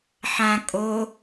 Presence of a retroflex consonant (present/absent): absent